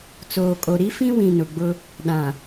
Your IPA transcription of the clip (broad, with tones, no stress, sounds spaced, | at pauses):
t͡s oː˨ kʼ o˨ ɾ i˦ f ĩ˦ w ĩ˨ n ʊ˨ ɡ͡b ʊ˦ | ɗ ã˨